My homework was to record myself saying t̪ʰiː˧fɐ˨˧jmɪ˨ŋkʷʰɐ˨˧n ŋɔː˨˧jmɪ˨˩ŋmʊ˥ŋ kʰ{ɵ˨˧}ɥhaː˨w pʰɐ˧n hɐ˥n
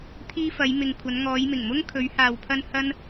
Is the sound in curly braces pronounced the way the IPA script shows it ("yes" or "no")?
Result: yes